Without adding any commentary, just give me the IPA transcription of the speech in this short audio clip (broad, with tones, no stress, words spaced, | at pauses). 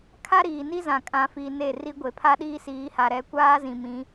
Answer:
kʰa˦ ɾiː˨ni˦zã˨ kʼã˨fi˨ ne˦˨ri˦ ɡʷe˨pʰa˦ɗiː˦siː˨˦ ha˨ɾɛ˨˦kʷaː˦zĩ˨ mĩ˨˦